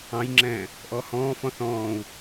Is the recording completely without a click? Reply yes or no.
no